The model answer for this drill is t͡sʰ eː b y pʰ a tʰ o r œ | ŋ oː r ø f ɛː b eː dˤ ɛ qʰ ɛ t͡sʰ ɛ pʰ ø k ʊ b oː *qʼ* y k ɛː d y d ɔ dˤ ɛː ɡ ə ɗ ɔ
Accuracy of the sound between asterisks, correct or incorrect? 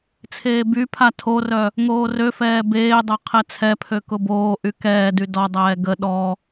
incorrect